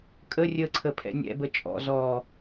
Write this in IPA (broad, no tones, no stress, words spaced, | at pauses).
kʼə rʲəǀʰə pʰɛ̰nʲɛ̰bə t͡ʃʼɔ̰ zɔ